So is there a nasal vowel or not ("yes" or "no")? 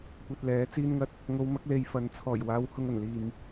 no